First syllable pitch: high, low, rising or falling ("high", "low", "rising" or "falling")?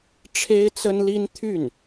high